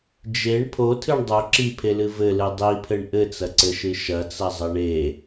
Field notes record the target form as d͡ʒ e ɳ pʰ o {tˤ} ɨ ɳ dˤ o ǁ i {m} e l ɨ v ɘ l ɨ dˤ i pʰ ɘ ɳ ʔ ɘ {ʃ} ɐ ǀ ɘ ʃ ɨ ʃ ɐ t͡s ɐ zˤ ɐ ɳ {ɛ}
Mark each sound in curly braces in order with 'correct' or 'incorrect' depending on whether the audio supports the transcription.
incorrect: tʰ, incorrect: pʰ, incorrect: t͡s, incorrect: e

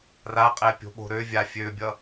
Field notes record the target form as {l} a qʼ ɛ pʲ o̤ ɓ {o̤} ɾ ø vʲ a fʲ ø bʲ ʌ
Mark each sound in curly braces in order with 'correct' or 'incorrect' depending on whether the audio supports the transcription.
incorrect: r, correct

